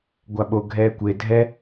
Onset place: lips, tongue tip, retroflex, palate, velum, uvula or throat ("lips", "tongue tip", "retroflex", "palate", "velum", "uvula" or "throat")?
velum